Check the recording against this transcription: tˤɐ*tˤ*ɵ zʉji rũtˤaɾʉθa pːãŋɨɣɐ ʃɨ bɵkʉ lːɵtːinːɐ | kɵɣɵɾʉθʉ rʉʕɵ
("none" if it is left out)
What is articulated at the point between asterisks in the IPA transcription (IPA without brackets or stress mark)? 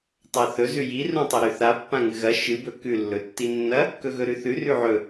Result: θ